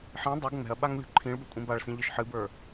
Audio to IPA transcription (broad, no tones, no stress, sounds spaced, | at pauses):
ħ ĩ dˤ u ɡ ŋ͡m ɛ̤ ɐ̯ ɓ a ŋ lʲ o̤ ǃʰ ĩ ɭ b ɛ kʷʼ ĩ b a ɭ s ĩ ʎ ɨ ʃ ħ ɨ b ə˞